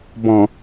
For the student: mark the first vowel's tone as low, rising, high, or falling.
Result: low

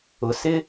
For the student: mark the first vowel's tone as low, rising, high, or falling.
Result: low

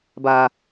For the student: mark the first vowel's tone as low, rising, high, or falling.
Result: low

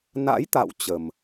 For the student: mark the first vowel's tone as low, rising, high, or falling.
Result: rising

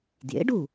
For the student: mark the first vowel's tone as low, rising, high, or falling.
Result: rising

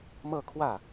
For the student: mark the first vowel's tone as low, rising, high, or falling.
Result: falling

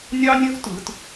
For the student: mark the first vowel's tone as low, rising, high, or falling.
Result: high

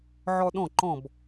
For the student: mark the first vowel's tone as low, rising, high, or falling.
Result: high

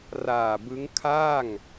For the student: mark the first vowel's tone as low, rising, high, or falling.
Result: low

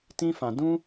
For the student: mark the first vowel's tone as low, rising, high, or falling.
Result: high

